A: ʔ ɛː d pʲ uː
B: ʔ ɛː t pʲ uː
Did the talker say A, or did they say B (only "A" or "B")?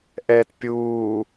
B